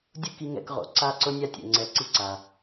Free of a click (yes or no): no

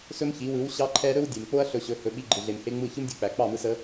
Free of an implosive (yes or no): no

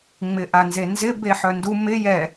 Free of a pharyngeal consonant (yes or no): no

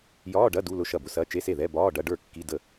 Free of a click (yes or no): yes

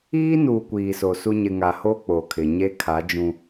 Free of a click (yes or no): yes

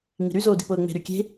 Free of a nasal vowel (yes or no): yes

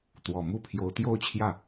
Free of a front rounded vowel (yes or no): yes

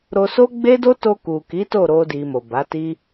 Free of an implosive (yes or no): yes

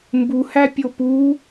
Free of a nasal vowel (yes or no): yes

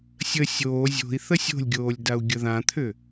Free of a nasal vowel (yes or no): no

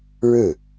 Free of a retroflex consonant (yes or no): no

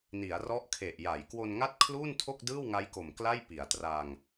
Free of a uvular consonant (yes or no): yes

